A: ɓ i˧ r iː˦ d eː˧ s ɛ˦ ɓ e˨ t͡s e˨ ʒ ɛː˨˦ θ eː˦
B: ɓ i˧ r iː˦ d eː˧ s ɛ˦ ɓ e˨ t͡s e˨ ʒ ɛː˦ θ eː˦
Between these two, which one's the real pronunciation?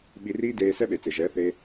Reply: A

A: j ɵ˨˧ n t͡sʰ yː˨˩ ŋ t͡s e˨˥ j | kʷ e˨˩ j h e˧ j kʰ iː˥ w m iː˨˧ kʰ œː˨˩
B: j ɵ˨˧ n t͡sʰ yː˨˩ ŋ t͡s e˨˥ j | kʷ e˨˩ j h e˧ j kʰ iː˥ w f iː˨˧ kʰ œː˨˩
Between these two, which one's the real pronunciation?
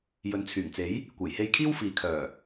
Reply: B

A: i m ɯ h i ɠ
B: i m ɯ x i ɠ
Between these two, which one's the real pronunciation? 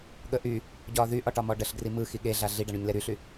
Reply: B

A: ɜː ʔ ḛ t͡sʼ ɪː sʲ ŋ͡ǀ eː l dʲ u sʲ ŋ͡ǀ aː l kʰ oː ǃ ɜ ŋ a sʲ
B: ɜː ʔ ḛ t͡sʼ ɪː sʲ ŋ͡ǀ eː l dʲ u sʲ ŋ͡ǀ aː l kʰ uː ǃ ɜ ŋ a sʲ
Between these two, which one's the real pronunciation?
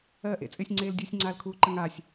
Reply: B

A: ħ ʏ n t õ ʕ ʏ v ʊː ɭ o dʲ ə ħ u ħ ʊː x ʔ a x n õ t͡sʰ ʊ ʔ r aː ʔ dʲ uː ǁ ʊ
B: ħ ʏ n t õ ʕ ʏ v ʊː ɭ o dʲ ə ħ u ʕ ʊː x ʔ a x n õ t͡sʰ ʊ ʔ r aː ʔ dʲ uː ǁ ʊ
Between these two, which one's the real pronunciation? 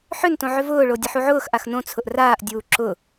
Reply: B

